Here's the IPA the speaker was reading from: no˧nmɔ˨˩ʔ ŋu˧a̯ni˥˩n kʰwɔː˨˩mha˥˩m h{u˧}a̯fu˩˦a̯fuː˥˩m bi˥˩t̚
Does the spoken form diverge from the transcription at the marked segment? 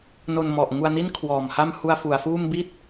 no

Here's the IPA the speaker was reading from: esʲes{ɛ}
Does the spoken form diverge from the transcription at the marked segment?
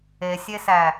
yes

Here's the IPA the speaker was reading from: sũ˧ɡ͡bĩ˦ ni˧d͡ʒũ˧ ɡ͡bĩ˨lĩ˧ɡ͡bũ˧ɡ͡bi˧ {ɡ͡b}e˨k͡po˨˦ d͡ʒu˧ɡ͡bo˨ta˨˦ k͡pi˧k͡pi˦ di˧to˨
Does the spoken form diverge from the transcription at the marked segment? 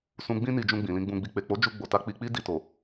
yes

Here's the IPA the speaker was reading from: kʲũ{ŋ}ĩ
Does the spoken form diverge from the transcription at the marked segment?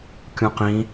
yes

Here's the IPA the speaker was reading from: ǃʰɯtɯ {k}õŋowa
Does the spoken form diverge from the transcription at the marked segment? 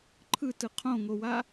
yes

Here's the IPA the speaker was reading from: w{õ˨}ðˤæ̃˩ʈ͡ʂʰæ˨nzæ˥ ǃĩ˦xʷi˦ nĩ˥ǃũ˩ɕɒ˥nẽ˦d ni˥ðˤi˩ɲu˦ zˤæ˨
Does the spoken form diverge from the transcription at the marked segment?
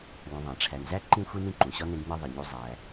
no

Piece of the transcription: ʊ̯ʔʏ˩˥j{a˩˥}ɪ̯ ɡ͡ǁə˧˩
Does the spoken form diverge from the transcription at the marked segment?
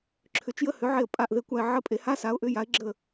no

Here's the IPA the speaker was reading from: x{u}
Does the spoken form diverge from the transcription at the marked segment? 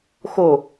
yes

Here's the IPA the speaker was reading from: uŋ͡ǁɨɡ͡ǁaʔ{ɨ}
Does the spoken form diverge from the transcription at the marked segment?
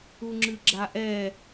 yes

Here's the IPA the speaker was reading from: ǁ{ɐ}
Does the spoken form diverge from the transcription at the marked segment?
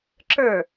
yes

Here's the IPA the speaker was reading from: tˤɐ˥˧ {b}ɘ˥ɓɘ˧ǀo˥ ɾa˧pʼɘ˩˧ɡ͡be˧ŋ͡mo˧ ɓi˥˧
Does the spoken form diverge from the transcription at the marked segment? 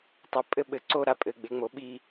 yes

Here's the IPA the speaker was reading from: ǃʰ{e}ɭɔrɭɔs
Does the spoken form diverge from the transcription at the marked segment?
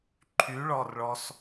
yes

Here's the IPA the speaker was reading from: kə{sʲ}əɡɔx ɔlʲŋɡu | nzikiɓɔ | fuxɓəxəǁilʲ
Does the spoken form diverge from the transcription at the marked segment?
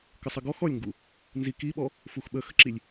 yes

